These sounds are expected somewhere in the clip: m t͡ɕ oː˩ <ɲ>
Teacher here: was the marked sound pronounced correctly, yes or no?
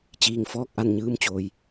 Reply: no